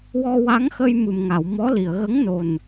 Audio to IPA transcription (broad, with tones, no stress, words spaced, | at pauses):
wɔ˧wa˧˥ŋxə˧j mɨ˨˩mŋa˨˩˨wmɔ˧˥li˨˩˨ə̯ ɣə˧˥ŋno˨˩n